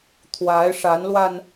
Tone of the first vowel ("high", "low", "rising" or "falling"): rising